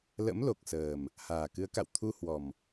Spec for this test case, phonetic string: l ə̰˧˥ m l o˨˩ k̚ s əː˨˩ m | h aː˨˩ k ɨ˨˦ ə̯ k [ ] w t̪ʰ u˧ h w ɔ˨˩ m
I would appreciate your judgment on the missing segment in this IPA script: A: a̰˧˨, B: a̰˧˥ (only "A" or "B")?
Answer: A